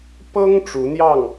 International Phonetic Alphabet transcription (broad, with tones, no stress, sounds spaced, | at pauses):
p ɤ˥ ŋ ʈ͡ʂ u˧˥ n̪ j ɑ˥˩ ŋ